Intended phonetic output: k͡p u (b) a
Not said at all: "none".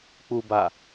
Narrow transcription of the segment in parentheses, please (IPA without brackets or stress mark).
b